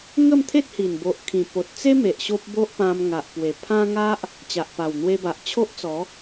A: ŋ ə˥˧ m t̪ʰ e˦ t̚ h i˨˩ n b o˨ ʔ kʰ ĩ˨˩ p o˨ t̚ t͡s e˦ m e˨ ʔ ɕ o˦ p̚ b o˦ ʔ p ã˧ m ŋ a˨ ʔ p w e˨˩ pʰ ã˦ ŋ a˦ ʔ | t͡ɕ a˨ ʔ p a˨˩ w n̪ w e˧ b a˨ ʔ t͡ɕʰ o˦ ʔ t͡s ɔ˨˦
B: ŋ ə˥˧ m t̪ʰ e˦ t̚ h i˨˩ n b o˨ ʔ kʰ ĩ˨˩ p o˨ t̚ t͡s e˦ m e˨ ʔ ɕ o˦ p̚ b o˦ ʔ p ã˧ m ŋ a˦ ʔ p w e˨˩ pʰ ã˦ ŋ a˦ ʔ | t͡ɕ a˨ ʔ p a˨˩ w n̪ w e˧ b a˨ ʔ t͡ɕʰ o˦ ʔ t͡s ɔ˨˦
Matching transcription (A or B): A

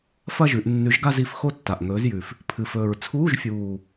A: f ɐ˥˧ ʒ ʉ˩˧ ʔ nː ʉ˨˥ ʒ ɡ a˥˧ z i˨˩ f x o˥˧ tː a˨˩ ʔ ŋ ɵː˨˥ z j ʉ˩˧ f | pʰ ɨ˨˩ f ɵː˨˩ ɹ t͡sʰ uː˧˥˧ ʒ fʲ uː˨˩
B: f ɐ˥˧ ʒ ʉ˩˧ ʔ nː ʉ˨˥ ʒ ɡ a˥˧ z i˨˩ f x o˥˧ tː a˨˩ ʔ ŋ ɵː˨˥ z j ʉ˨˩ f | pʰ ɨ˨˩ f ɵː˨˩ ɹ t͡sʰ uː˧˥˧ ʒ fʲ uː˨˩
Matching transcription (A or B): B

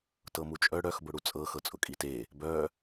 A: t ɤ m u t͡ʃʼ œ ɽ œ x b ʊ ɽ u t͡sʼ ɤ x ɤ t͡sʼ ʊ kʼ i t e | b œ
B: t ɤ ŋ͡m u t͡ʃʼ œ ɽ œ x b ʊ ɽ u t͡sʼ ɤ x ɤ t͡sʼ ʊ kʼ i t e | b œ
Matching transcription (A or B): A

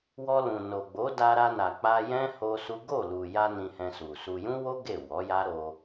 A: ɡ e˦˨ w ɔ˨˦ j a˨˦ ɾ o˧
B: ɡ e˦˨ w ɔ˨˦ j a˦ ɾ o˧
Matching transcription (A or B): B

